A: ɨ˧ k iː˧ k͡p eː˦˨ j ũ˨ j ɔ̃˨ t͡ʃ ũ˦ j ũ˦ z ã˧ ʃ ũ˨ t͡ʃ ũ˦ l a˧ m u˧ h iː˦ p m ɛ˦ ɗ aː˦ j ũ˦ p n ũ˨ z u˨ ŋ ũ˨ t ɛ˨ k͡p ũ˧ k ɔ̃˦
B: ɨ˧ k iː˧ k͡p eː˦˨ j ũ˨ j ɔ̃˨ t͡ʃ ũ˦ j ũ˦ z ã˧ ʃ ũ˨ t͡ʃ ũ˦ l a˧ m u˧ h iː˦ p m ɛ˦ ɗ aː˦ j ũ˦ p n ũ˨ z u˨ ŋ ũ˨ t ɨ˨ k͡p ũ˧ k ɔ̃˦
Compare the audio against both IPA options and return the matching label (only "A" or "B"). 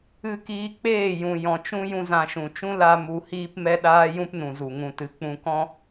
B